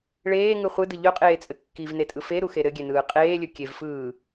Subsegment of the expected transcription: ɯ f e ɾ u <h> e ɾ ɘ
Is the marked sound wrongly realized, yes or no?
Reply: yes